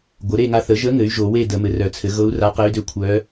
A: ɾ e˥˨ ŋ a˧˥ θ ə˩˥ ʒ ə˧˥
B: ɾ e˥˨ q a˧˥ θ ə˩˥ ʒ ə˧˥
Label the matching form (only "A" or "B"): A